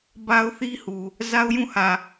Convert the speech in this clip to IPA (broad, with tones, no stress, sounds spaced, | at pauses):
b a˦ ʊ̯ θ i˦ h u˨ | z a˦ ʊ̯ j ũ˦˨ h ä˨